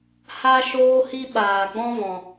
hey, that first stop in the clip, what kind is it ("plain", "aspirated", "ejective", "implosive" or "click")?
implosive